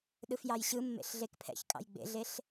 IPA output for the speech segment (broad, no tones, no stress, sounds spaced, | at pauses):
ɗ ɯ f j ɑ j ɕ ɯ mː ḛ ɬ ɮ e k pʰ ɛ̰ ç kʼ ɑ̰ j ɡ͡b ḛ ɮ e ɬ